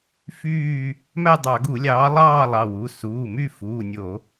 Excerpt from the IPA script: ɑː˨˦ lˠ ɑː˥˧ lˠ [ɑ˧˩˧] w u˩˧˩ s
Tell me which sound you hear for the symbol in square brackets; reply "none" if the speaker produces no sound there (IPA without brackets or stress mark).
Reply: ɑ˩˧˩